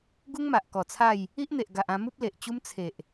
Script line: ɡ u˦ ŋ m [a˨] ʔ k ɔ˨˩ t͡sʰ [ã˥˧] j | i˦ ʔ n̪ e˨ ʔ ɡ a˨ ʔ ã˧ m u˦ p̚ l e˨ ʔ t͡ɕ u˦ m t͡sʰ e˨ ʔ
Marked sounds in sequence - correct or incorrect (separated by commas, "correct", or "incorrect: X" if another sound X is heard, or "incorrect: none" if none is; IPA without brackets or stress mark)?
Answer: correct, incorrect: a˥˧